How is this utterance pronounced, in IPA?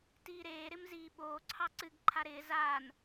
t iː ɾ eː ɾ ɪ m z iː ɓ oː ǀʰ ɑ ǀ ɨ ɡ ǃʰ a ɾ ɪː z aː n

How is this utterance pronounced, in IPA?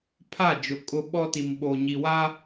pʰ a˦˨ d͡ʒ ʊ˨ kʼ ʊ˦ ɓ ɔ˦ t i˨ m ɓ o˨ ɲ i˨ w a˦

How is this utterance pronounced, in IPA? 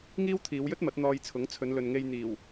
ŋ iː˥ w t̪ʰ iː˨˧ w j ɵ˥ t̚ m ɐ˨˥ t̚ n̪ ɔː˧ j t͡sʰ ʊ˨˥ ŋ t͡sʰ ɵ˨˧ n l ɵ˨ n ŋ e˧ j n̪ iː˨˩ w

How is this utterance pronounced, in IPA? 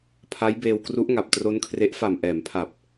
pʰ a˦˥ j b eː˧ w k r u˦˥ ʔ ŋ a˨˩ p̚ t r o˦˥ n kʰ r e˦˥ ʔ f a˨˩ m ʔ ɛː˩˦ m pʰ a˨˩ p̚

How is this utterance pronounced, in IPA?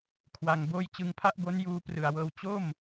kʰ w a˧ ŋ b oː˥˩ j t͡ɕ ɯ˧ ŋ pʰ a˥˩ ʔ b o˦˥ n j uː˧ p r ɯ˨˩ a̯ w ɤː˧ w t͡ɕ o˥˩ m

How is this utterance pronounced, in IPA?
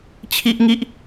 t͡ɕʰ i˦ ʔ ŋ i˦ ʔ

